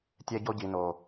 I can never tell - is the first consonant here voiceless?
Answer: yes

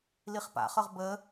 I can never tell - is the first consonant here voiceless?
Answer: no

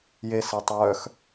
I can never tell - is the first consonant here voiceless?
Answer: no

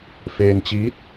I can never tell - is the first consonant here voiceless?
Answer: yes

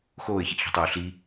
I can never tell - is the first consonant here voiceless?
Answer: yes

